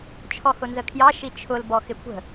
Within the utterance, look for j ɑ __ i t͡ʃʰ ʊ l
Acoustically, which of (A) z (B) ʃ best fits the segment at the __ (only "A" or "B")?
B